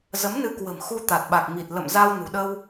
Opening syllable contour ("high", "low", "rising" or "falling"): rising